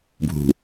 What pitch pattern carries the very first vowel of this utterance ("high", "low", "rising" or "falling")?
low